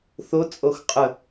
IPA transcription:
θ o t͡sʼ o x qʼ ə

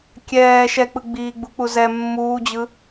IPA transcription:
kʲ ɛː ʃ ɛ k͡p ɯ ɡ͡b iː ɡ͡b u k͡p u z ɛ mː uː d͡ʑ ɯ

